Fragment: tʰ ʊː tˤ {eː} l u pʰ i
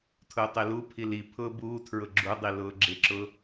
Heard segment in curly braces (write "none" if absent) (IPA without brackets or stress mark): e